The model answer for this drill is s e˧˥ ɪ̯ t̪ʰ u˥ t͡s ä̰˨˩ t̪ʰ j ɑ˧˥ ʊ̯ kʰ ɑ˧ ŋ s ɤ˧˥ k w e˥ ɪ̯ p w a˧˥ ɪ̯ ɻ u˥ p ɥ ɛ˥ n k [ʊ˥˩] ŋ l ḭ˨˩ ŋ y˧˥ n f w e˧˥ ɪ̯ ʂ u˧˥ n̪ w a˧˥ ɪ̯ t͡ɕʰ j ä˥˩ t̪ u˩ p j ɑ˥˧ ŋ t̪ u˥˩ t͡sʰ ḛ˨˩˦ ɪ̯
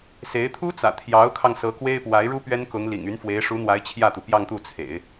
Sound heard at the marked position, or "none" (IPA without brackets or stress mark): ʊ˧˥